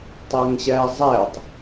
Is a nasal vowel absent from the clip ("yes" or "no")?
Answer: yes